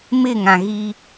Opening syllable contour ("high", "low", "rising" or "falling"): falling